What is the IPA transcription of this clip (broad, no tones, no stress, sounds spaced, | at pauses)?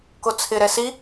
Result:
k o t͡sʰ ɪ ɾ ɛ s i